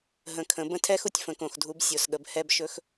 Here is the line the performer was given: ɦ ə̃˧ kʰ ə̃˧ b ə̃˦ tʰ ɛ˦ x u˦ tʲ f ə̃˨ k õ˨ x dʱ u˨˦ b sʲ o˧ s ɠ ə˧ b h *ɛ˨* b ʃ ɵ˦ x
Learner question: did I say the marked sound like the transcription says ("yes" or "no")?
no